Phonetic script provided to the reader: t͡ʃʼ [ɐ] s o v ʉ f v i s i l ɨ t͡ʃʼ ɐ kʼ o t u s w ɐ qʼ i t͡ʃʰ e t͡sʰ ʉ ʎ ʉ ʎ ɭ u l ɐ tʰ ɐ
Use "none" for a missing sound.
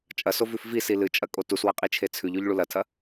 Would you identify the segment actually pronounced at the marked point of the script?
ɐ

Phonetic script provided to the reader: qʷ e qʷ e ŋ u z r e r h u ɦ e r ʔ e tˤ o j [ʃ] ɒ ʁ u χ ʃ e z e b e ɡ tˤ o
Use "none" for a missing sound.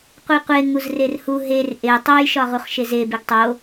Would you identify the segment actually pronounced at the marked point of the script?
ʃ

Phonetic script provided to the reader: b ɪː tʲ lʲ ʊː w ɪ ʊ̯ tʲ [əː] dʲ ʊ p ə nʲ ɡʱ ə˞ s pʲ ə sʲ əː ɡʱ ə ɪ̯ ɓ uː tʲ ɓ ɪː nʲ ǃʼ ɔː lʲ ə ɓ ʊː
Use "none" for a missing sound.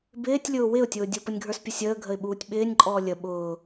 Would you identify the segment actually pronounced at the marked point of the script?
ʊː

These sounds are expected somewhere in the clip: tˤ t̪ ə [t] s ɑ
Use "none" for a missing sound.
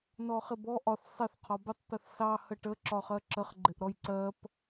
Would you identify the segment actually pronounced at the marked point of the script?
θ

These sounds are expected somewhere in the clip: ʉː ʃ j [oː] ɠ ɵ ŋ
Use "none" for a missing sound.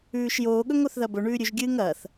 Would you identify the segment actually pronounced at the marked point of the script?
oː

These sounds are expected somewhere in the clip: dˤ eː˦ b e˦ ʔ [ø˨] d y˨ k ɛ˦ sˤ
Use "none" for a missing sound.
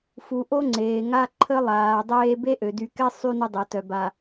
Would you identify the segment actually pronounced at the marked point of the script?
ø˨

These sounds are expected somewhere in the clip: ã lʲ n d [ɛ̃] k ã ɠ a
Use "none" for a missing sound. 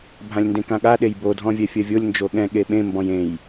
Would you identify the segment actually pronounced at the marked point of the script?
ẽ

